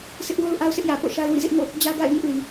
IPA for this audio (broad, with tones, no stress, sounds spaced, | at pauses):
sʰ ɪ˦ ʔ w o˦ ʊ̯ ʔ a˦ ʊ̯ sʰ ɪ˦ ʔ j ä˨ p o̰˦˨ ʃ a˦ ɪ̯ w ḭ˦˨ z ɪ˦ ʔ ŋ o̰˦˨ | d͡ʑ ä˦ ɡ a̰˦˨ ɪ̯ ŋ ɪ˦ ʔ l i˨